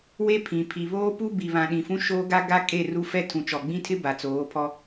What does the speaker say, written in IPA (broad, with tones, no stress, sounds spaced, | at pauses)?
w e˦ pʰ ĩ˨ pʰ i˨ β oː˦ p u˦ b i˨ β ã˨ ɗ ĩ˨ f ũ˦ ʃ oː˦ ɡ a˦ ɡ a˦ kʼ e˦˨ r u˦ f ɛ˦ tʰ ũ˨ t͡ʃ ɔ˨ ɡ͡b ĩ˦ tʰ ɪ˦ b a˨ t͡s oː˨˦ pʰ ɔ˦